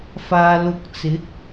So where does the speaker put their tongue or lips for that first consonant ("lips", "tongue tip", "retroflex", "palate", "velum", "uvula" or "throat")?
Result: lips